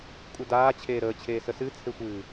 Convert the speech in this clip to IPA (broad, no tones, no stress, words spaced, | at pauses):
kʷʼədaː t͡ɕʰeːɾəːt͡ɕʰeː səsɨt͡sʰexʷɨː